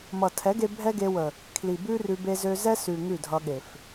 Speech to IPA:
m ʌ˨ tʰ ɛ˨˦ ɡ e˧ bʱ ɛ˦ ɡ e˧ w ə˨ | kʰ l i˨ b ʉ˦ r ʉ˧ b e˧ z ø˧ z ɛ˦ s ʉ˨ ŋ ʉ˦˨ dʱ ʌ˧ ɠ e˨ f

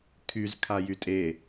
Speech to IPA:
kʰ y z kʰ a j y tʼ e

